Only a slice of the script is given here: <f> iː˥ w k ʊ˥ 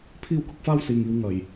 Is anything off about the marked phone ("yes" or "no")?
yes